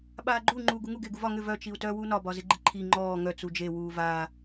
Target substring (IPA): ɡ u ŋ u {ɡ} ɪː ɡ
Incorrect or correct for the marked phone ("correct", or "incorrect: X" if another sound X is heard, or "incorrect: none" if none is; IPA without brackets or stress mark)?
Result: correct